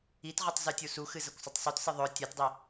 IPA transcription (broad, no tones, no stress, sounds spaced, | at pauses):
i t ʁ ɵ tˤ z ʉ tʲ u s u x ɨ z ɐ kʷ sˤ ɵ tˤ sˤ u t s ɨ ðˤ ɵ tʲ a t dˤ i